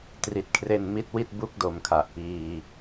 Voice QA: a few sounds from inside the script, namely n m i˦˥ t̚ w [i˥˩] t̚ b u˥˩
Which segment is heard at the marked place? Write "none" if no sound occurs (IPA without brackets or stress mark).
i˥˩